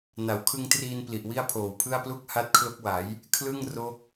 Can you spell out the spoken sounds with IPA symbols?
n a˩˦ w kʰ ɯ˧ ŋ t r iː˧ n p l i˨˩ ʔ w i˥˩ a̯ pʰ oː˨˩ w pʰ ɯ˥˩ a̯ p l u˥˩ k̚ h a˦˥ t̚ kʰ l o˦˥ k̚ w a˩˦ j | kʰ l ɯ˥˩ ŋ r o˦˥ k̚

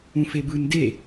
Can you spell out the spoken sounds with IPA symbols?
ũ f e b ɯ n d e

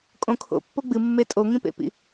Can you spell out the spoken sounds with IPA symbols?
kʼ õ kʰ o̰ pː o ɡ͡b ɨ mː e tʼ o ŋ ĩ p ḛ p ḭ

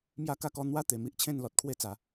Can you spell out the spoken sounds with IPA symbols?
m j a˧ k a˧ k ɔ˧ n̪ w a˦ t̪ e˧ m i˦ ʔ t͡ɕʰ ẽ˥˧ n l ɔ˨ t̚ kʰ w e˦ t͡s a˨˦

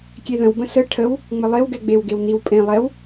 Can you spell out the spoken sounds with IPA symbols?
kʲ e ð ə̃ w b ə̃ s ə ʈʰ ə w | ŋ͡m ə lˠ e w ɡ ɛ ɡ͡b e w ɡ e w n i w pʼ ẽ lˠ ɛ w

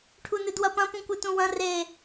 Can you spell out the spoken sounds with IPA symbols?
ʈʰ u n ɨ d w ɐ p ɐ̃ p ũ kʷ ɨ t ũ w ɐ̃ r e

